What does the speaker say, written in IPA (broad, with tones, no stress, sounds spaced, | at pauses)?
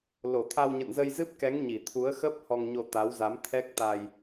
l o˧˩ t̪ʰ a˧ w ɲ ə̰˧˨ n z ə˧ j z ɨ˦˥ p̚ k ɛ˨˦ ŋ ɲ i˧˩ t̪ʰ u˨˦ ə̯ x ə˦˥ p̚ h ɔ˧ ŋ ɲ o˧ t̪ a˨˦ w z a˨˦ m t̪ʰ ɛ˦˥ k̚ t̪ a˧ j